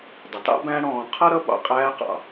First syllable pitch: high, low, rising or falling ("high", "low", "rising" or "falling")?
low